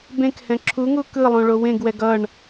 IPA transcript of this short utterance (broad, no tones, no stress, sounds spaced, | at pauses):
b ẽ k h ɛ̃ ǁʰ u ŋ u k ɯ lˠ õ ɭ o w ẽ ɡ w ɛ ɡ ʌ ɳ